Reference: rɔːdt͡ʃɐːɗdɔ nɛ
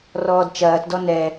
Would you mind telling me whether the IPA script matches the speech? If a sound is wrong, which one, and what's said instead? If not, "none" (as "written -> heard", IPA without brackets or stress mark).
ɗ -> t